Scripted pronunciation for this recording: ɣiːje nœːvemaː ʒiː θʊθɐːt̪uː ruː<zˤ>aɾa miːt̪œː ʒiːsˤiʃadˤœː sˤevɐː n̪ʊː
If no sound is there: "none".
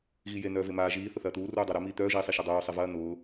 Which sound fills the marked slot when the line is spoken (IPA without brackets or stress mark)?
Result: dˤ